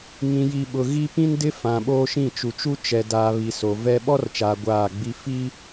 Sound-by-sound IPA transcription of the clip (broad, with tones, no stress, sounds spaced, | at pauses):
ŋ ĩ˨ j i˨ ɓ ʊ˨ ɣ i˦ p ĩ˦ n d ɪ˦ f ã˨ ɓ oː˦ ʃ ĩ˦˨ t͡ʃ u˨ t͡ʃ u˦ t͡ʃ ɛ˨ d aː˨ β i˨ s o˨ v ɛ˦ ɓ ɔ˦ r t͡ʃ aː˨ ɡʷ aː˦˨ ɡ͡b i˦ f i˦